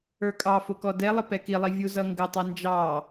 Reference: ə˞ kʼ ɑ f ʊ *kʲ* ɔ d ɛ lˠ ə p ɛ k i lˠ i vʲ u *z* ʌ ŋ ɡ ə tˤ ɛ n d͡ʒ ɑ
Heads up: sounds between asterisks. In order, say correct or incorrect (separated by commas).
incorrect, correct